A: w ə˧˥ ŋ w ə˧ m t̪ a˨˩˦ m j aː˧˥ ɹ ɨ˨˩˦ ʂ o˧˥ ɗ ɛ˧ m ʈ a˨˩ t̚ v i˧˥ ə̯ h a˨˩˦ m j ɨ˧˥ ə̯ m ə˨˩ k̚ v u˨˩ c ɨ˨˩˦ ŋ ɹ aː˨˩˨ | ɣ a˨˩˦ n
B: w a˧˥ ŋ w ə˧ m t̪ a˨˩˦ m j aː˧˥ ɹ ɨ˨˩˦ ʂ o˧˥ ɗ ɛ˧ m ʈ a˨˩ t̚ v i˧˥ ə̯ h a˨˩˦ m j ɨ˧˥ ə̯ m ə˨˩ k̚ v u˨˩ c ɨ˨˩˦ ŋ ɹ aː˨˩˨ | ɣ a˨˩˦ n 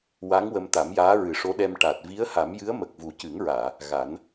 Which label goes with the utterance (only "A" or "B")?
B